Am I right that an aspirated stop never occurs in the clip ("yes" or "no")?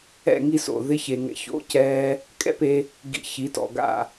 yes